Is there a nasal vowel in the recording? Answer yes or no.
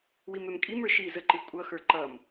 no